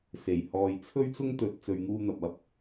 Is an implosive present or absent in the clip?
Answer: absent